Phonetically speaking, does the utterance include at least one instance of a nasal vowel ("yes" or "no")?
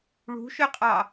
no